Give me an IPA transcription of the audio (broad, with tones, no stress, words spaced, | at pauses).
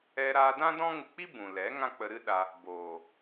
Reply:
ɛ˧ɾaː˧ dã˦dɔ̃˦ ŋɨ˧k͡pi˦ bũ˨lɛ˨˦ ŋã˦k͡pə˧ɾɨ˦ɗa˧ | boː˨